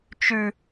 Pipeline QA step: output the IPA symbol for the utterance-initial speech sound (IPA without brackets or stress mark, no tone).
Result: t͡ʃ